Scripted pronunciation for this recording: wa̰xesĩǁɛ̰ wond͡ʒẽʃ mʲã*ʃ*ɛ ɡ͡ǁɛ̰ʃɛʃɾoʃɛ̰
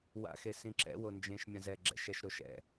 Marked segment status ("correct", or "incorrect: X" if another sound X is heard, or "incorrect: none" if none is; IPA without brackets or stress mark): incorrect: z